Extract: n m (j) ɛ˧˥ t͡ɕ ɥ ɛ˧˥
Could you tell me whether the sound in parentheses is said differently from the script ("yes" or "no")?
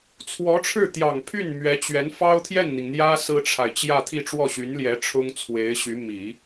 yes